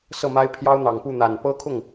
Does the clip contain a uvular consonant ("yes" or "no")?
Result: no